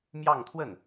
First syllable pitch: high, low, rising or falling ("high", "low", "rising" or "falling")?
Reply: falling